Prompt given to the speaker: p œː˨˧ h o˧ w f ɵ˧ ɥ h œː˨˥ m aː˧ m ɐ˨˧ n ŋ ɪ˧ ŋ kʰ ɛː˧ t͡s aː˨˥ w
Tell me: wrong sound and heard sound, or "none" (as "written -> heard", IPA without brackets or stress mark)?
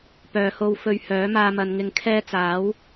none